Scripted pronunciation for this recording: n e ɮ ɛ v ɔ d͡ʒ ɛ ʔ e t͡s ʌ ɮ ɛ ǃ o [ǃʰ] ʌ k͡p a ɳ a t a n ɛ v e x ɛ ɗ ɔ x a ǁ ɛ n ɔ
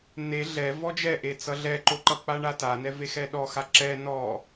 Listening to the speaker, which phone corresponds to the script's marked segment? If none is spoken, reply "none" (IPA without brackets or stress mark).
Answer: ǃ